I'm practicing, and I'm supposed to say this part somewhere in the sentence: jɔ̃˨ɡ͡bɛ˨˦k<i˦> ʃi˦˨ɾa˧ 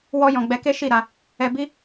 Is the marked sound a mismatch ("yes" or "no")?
yes